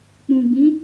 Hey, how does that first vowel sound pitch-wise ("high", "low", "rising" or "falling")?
low